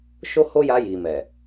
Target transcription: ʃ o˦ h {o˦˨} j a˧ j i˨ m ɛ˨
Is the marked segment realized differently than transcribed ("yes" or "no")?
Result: yes